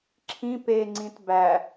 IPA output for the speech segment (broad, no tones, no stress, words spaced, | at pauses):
ǁʰĩ peŋ͡ǀĩt bæ